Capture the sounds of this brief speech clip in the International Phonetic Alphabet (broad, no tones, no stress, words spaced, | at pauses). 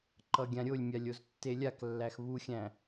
ǃʌɡʲãɾʲolʲmʲalʲ oztːelʲaklːæx βuxʲæ̃